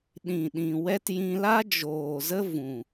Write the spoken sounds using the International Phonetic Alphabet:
ɗ ĩ˨ ɗ ĩ˨ w ɛ˦ t j ĩ˧ l a˦ d͡ʒ oː˨ z ə˦ v ũ˨

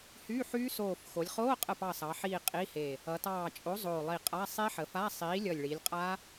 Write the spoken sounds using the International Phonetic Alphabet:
h y˧˥˧ ħ yː˦˥ s oː˧˩ f x o˩˧ lʲ χ oː˧˥˧ qʼ ə˧˩ p ɑ˧˩ s ɑ˩˧ ħ iː˧˩ qʼ i˧˥˧ h e˧˩ | ʌ˩˧ t ɑː˧˩ t͡ʃʼ o˨˥ zˤ oː˧˩ lˠ i˧˩ qʼ a˧˥˧ sˤ e˦˥ ħ ə˩˧ f a˧˥˧ sˤ iː˨˥ lʲ ʌ˧˩ lʲ ɭ i˩˧ lʲ qʼ a˦˥

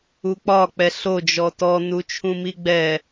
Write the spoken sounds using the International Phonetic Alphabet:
u k͡p ɒ k͡p ɛ ɬ o d͡ʒ ɔ t ɔ n u t͡ʃʰ ũ m i ɡ͡b ɛ

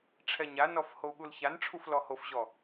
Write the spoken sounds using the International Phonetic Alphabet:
ʈ͡ʂʰ ɛ ɲ a n ɔ f h o u̯ ɠ u l ç a n ʈ͡ʂʰ u f l ɔ h o f ʑ ɔ

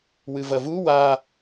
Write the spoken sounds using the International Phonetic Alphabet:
w ɨ v ɐ v u w a

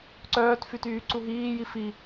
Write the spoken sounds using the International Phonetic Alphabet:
ǀ œː t f y t yː ǀ u ɦ iː j i f i

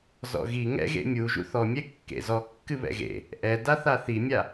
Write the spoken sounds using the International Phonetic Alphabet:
z ɔ̰ ɣ i ŋ ɛ̰ ɣ ḛ mʲ u ʒ ṵ θ ɔ mʲ ɛ kː ḛ z ɔ kː ɨ β ɛ̰ ɣ ḛ | ʔ ɛ d a θ a θ i mʲ a

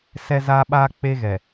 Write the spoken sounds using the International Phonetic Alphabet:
s ɛ˦ z a˦ ɓ a˦ k͡p e˦ ɣ ɛ˨

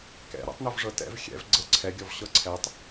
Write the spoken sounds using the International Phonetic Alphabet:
k ɛ̰ ɾ ɛ̰ tˤ n o v ʐ ɤ t ɛ̰ v xʲ ɛ̰ v ɡ͡ǀ ɤ ǀʰ ɛ ɡʲ ɔ v ɕ ɤ ǀʰ ɛ tˤ

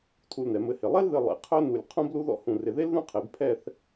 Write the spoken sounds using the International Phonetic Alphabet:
tʰ u˧ l n ɛ˩˧ m ɘ˧ h ɪ˧˩ lˠ ɛ˥ l ð ɘ˧ lˠ ḛ˩˧ qʰ œ˥ n u˧˩ lʲ qʰ ũ˥ b l u˥ ð ɔ̰˥ h ũ˧˩ r ɪ˧˩ ð e˥ l ð ũ˥˧ qʰ e˩˧ b pʰ ɛ˥˧ θ

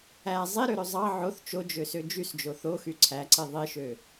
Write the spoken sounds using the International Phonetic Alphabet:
æ zˤ i ɾ ø ɾ ø zˤ ɑ ʕ o θ t͡ʃ o d͡ʒ ø s ø d͡ʒ y s d͡ʒ o θ o x y ǀʰ æ ǀ i ðˤ i ʃ ø

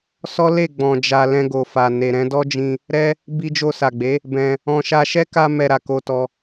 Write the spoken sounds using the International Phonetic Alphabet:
s ɔ˦ l e˦˨ ɡ͡b ɔ̃˧ d͡ʒ a˧ l ɛ̃˧ ɡ o˨ f a˨ n e˨ ɾ ɛ̃˧ d ɔ˦ d͡ʒ ĩ˧ | ɾ ɛ˦ | b i˧ d͡ʒ o˧ s a˨ ɡ͡b e˨˦ | b ɛ̃˧ | ɔ̃˧ ʃ a˧ ʃ ɛ˦ k a˧ m ɛ˧ ɾ a˨ k o˧ t ɔ˧

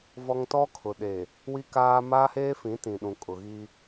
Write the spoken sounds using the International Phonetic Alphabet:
v ɔ˦ ŋ t ɔ˦ kʰ ʊ˨ ɗ e˨ | w i˦ k aː˦ m aː˦ h eː˦ f ĩ˨˦ t ĩ˨ ɗ ũ˨ kʼ ʊ˨ ɣ i˦

